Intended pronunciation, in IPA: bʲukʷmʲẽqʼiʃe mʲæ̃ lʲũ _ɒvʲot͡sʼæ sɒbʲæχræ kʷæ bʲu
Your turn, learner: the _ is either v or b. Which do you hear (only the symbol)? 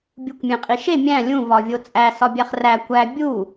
v